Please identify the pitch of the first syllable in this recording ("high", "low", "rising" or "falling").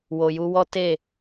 low